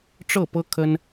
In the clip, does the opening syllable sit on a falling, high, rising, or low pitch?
falling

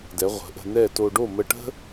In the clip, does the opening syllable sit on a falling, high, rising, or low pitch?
rising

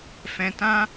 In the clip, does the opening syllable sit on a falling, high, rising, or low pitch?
low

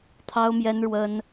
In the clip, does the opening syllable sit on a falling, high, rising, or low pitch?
high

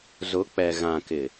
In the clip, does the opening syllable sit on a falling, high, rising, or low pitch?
rising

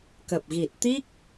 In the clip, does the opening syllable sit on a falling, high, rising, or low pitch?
low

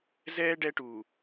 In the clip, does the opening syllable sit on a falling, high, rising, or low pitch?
high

